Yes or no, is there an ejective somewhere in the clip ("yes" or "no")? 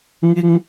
no